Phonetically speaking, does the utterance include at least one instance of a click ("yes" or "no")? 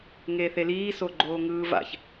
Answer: yes